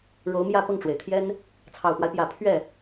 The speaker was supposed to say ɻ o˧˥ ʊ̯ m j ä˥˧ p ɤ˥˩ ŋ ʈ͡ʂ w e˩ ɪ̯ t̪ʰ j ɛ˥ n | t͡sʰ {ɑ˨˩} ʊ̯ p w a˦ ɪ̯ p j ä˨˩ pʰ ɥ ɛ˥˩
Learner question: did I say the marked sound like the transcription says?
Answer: yes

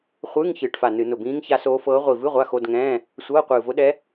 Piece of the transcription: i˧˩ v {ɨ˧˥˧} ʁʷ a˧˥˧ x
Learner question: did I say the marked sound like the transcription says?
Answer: yes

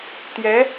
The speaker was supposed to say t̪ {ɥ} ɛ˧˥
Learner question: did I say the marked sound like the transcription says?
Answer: no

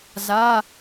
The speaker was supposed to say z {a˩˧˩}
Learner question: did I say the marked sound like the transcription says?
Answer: yes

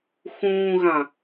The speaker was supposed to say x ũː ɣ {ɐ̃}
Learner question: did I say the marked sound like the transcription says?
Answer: no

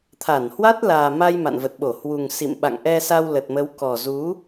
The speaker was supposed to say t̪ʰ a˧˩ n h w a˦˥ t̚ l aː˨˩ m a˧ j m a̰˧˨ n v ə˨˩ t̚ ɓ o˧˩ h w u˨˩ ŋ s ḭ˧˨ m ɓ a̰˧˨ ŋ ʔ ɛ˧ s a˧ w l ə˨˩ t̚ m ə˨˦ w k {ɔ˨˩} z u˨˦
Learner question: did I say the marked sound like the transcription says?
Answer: yes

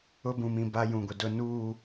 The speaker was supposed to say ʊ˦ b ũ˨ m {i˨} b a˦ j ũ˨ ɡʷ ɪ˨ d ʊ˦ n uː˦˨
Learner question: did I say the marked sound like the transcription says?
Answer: no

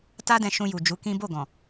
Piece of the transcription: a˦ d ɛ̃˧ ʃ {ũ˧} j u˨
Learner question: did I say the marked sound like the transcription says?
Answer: yes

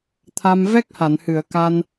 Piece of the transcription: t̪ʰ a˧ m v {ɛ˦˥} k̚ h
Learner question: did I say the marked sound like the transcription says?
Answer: yes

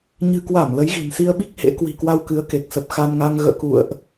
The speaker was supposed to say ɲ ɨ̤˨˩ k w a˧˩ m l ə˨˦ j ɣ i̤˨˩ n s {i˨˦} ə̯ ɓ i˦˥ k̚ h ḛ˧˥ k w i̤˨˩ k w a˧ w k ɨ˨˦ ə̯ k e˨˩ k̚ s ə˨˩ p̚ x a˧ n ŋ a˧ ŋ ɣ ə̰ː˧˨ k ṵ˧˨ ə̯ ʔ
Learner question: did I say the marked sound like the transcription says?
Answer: no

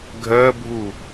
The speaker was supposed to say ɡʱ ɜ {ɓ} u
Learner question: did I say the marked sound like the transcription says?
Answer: no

